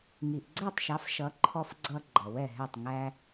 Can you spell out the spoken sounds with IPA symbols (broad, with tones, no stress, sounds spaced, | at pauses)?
ŋ i˩ ʔ ɡ͡ǀ ɛ˥˩ tˤ ʃ ɑ˩˥ f ʃ ʌ˩˥ ǃʰ ɔ˧ f ɡ͡ǀ ʌ˧ ɡ͡ǃ ʌ˩ w ɛ˥˩ ɦ ɛ˥˩ tˤ ŋ æ˧